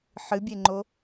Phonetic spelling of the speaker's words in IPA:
ħɨbʲeŋ͡ǃo

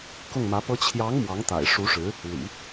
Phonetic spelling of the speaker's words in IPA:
kʊ˥˩ŋmä˧˥pɤ˥ t͡ɕʰjɑ˧˥ŋ mwɑ˧˥ŋt̪a̰˨˩ɪ̯ ʂu˧˥ʂɻ̩˧˥ | lḭ˨˩˦

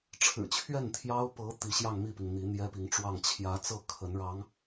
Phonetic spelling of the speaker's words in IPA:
ʈ͡ʂʰɻ̩˨˩t͡ɕʰɥɛ˥˩nt̪ʰjɑ˥ʊ̯ pɤ˧˥ t̪i˧˥ɕjɑ˥˧ŋmi˥˩pi˩ŋ n̪i˧˥n̪jɛ˥pi˧˥ŋʈ͡ʂwɑ˥˩ŋ t͡ɕʰjä˧˥t͡sɤ˥˩ kʰə˧˥nɻɑ˧˥ŋ

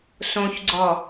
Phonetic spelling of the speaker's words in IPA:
sõçɡ͡ǀɔ

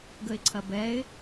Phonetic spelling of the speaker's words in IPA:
ɡəɪ̯ǀʰɐbɛɪ̯

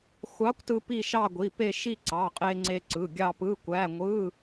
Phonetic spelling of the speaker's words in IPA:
xʷɑ˧˥kʷtɯ˧ pi˥˧ʃɑ˥˧ɡʷi˩˧˩pe˥˧ ʃi˥˧ǀɑ˩˧˩qʼe˧ŋ͡ǀe˧ ǀɯ˩˧˩ɡʲɑ˥˧pɯ˧˥˧kʷæ˧˥˧ ŋʷɯ˧˥˧

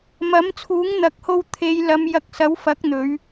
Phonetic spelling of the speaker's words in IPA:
mɐ˨˥mt͡sʰuː˨˥ŋn̪ɐ˨˥k̚ho˧w t̪ʰe˨˧j lɐ˨˧m jɐ˧k̚ sɐ˨˥wfɐ˨˥k̚ n̪ɵ˨˥ɥ

